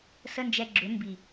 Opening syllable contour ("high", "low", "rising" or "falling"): high